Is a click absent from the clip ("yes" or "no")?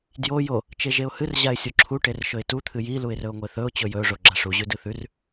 no